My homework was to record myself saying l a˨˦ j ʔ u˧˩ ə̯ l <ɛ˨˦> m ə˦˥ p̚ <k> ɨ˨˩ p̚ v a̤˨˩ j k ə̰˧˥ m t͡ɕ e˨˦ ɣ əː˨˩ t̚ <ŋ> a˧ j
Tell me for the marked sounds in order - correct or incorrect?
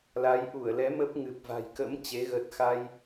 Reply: correct, incorrect: ŋ, incorrect: x

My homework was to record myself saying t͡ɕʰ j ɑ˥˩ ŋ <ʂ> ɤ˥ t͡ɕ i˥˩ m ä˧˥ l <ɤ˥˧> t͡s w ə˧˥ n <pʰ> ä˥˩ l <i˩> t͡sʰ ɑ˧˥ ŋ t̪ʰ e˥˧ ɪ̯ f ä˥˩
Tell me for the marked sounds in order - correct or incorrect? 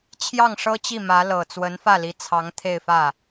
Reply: correct, incorrect: ɤ˨˩, incorrect: f, incorrect: i˧˥

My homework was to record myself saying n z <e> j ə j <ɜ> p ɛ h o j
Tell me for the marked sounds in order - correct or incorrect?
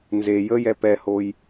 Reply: correct, incorrect: ɛ

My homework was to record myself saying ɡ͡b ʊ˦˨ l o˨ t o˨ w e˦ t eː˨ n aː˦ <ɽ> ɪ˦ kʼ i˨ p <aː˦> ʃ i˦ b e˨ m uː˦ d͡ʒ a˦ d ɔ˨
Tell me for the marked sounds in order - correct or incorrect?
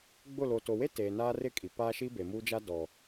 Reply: incorrect: r, correct

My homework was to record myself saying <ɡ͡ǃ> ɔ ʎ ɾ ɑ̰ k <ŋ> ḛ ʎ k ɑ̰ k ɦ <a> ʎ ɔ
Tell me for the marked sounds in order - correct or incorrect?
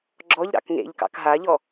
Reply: incorrect: ɡ͡ǁ, correct, correct

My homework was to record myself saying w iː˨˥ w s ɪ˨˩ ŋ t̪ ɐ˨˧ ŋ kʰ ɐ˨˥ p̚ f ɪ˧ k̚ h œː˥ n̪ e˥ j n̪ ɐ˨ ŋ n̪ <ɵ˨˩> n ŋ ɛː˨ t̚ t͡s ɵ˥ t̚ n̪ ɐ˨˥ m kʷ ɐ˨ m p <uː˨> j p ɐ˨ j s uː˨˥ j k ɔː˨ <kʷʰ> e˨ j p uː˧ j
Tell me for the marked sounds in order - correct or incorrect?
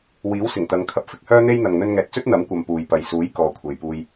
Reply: incorrect: ɵ˧, correct, correct

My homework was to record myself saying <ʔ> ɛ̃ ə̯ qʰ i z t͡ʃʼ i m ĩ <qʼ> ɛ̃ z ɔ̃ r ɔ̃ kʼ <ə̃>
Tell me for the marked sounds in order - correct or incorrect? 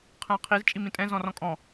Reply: incorrect: qʰ, incorrect: tʼ, incorrect: ɔ̃

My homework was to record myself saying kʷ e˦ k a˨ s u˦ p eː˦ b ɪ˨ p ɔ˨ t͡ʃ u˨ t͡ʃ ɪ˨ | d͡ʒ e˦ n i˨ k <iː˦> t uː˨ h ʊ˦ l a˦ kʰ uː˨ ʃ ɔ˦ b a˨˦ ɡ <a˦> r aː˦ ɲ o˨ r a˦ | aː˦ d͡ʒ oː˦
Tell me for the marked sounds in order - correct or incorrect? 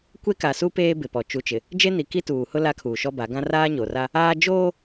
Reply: incorrect: i˦, incorrect: ã˦

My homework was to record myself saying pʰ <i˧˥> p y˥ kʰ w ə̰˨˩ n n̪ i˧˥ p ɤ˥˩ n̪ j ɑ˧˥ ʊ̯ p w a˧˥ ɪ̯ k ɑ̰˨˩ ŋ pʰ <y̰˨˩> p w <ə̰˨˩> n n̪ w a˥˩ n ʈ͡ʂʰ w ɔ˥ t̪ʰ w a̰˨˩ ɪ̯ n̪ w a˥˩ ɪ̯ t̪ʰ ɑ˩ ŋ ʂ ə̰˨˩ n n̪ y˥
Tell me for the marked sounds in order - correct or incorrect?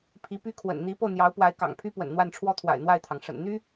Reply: correct, incorrect: y˥, correct

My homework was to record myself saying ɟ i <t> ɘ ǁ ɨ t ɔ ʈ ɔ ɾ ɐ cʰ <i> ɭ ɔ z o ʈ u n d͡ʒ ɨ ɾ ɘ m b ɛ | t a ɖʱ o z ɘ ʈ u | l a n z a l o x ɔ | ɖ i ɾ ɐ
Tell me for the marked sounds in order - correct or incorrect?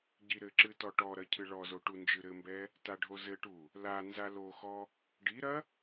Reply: incorrect: ɾ, incorrect: ɨ

